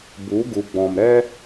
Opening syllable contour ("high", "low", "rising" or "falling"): rising